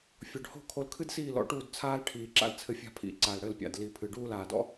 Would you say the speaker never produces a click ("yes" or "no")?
no